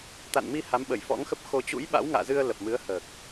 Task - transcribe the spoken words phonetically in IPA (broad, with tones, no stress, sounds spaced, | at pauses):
t̪ a̰˧˨ n m i˧ h a˨˦ m ɓ ə˧˩ j f ɔ̰˧˥ ŋ x ə˦˥ p̚ x o˧ t͡ɕ ṵ˧˥ j ɓ a̰˧˥ w ŋ a̰ː˧˨ z ɨ˧ ə̯ l ə˨˩ p̚ m ɨ˨˦ ə̯ h əː˨˩ k̚